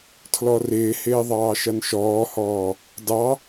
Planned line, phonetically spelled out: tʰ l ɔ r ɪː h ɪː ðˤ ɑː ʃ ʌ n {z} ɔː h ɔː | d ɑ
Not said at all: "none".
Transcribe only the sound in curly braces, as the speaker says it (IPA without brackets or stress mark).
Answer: ʃ